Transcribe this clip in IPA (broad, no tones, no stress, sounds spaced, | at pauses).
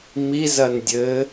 m i z ɐ n dʲ ɘ